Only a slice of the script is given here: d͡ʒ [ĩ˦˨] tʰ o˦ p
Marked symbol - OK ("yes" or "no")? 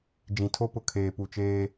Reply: no